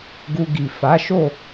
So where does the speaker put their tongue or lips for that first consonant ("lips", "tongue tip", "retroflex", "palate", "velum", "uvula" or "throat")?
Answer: velum